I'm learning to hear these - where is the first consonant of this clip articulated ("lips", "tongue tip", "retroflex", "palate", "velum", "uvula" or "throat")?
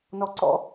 tongue tip